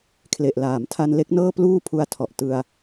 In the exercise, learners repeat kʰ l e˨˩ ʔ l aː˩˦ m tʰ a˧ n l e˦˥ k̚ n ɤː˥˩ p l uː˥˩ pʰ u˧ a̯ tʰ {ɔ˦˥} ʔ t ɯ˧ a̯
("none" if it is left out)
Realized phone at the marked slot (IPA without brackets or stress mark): ɔ˨˩